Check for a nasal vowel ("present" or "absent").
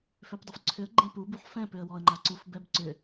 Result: present